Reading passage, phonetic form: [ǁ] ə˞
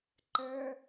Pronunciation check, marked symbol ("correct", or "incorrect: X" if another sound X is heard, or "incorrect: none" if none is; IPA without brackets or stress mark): incorrect: ǃ